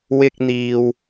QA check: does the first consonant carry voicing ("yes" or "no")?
yes